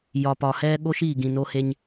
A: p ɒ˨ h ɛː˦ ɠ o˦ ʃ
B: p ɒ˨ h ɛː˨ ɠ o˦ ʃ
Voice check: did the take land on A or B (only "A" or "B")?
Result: A